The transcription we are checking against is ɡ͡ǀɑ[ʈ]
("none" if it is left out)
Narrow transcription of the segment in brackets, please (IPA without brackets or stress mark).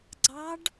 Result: ɖ